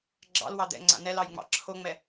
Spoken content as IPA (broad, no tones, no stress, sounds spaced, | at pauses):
ɡ͡ǁ ɑ̰ l w ɑ d̪ ɛ̰ ŋ͡ǀ a̰ n ɛ l ɑ j ŋ͡m ɑ̰ ǁʰ o ŋ͡m ɛ